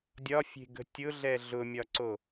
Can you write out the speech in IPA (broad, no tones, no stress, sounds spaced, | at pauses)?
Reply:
dʲ ɒ fʲ e̤ ɡ ə̤ tʲ ʊ ɮ ɛ ɮ ʊ mʲ ɒ ǀ o